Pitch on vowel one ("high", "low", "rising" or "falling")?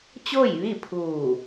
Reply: falling